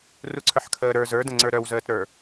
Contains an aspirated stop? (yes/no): yes